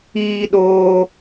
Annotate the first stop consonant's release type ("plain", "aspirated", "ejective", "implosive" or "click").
implosive